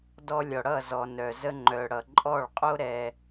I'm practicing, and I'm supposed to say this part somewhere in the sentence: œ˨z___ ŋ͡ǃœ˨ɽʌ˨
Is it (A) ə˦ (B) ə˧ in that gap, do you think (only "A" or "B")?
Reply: B